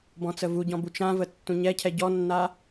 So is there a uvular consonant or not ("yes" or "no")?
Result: no